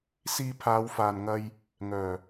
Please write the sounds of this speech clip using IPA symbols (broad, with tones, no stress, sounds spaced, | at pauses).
s iː˧ pʰ aː˨˧ w f aː˨ n ŋ ɐ˧ j | ŋ œː˨˩